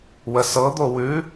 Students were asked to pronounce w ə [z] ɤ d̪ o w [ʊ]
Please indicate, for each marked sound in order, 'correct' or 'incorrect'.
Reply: incorrect: s, incorrect: ʉ

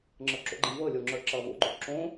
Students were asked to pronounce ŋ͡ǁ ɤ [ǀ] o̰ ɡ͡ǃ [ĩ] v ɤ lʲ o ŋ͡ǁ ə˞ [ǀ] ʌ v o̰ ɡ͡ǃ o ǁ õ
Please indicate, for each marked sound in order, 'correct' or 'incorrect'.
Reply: incorrect: ǁ, correct, incorrect: ǁ

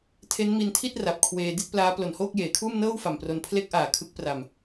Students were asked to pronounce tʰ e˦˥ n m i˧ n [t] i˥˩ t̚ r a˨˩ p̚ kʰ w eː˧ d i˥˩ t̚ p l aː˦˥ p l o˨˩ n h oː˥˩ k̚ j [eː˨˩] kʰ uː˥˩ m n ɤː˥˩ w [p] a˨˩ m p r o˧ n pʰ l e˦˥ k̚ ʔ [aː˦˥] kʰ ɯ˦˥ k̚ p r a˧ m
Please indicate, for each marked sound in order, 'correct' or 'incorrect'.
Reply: incorrect: tʰ, incorrect: eː˩˦, incorrect: f, incorrect: aː˨˩

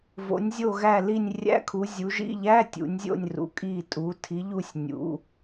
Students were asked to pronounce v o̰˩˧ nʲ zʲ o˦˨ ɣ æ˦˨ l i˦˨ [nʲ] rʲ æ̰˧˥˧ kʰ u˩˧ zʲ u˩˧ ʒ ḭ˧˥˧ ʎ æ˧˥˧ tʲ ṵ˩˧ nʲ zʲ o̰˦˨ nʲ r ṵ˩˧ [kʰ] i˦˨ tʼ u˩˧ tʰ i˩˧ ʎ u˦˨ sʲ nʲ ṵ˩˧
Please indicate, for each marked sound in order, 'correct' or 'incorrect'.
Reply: correct, incorrect: kʼ

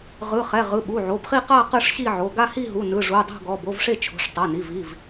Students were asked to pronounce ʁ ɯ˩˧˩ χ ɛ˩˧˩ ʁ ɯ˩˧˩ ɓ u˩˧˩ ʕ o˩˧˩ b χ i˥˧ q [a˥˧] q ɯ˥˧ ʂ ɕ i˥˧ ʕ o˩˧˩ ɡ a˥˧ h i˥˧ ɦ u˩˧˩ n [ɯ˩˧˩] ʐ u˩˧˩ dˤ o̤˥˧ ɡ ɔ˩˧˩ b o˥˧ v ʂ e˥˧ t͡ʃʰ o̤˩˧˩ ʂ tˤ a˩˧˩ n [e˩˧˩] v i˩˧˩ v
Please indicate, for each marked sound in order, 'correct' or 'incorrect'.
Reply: correct, correct, incorrect: i˩˧˩

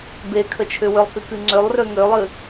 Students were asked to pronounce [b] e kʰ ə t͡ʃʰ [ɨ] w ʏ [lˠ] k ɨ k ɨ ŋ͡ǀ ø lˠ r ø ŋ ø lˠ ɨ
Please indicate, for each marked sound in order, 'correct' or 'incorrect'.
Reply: correct, incorrect: ʏ, correct

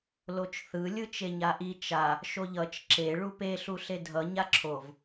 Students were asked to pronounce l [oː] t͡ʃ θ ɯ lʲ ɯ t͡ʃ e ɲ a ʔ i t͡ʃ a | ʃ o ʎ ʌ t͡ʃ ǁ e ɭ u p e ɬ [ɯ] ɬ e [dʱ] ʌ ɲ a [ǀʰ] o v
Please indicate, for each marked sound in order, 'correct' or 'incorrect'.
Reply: incorrect: o, incorrect: u, correct, incorrect: ǁʰ

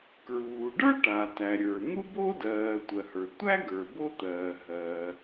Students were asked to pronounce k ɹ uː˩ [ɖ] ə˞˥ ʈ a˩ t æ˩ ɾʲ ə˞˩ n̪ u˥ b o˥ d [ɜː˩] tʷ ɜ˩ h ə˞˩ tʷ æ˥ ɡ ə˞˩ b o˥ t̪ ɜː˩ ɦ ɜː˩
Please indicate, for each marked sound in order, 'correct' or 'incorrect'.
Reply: correct, correct

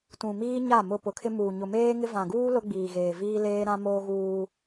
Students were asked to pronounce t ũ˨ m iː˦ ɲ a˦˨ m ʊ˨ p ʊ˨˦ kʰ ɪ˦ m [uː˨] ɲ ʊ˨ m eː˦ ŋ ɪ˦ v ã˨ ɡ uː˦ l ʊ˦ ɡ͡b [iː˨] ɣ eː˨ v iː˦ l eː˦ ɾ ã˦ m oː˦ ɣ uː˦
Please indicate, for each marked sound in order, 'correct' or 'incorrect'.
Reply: correct, correct

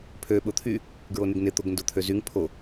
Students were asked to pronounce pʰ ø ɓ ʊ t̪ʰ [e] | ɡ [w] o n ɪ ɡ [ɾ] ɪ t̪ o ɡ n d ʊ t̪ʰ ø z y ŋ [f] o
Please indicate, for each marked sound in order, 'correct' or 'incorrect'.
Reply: incorrect: y, incorrect: ɹ, incorrect: n, incorrect: pʰ

